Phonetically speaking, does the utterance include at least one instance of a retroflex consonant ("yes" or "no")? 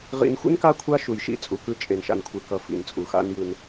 no